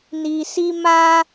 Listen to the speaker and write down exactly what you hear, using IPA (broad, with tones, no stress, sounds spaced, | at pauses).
n i˧ s i˦ m a˦